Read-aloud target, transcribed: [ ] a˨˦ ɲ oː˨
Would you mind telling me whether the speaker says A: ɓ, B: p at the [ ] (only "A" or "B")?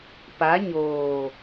B